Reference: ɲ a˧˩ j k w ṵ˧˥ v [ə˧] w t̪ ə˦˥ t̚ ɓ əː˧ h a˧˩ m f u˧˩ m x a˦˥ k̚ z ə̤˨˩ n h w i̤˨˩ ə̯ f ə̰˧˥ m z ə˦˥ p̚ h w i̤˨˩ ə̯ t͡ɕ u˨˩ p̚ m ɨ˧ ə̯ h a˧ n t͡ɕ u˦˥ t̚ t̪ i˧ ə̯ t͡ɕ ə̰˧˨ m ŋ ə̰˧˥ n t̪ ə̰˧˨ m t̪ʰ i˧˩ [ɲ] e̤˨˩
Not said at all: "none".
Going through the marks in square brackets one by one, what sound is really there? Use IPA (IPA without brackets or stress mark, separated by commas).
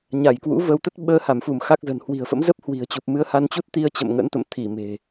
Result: ə˧, m